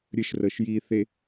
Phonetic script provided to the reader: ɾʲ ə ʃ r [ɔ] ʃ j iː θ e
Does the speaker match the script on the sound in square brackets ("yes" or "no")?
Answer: no